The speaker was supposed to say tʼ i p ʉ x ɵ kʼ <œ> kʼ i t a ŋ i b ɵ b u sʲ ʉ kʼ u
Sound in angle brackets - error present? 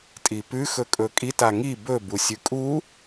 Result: yes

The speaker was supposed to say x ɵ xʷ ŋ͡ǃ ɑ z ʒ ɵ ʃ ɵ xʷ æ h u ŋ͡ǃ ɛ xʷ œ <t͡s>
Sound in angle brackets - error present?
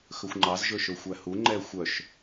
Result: yes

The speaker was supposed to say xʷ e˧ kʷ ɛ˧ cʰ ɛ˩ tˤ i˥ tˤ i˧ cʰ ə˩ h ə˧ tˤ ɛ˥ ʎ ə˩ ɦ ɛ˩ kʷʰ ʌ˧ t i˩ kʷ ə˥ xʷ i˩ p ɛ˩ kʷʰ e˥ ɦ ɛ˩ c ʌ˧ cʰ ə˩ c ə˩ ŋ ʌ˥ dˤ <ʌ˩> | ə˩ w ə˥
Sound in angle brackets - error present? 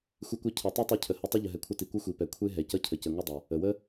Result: no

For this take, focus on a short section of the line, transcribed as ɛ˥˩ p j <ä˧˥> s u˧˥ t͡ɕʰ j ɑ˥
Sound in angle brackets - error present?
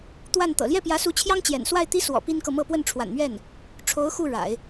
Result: no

